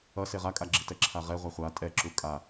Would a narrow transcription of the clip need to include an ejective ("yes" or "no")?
yes